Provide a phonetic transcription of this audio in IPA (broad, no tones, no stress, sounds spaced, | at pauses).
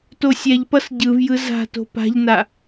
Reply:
t o sʲ ɛ ʎ p ʌ s ɟ ɯ v j ɯ z a̤ t o̤ p a̤ ʎ n a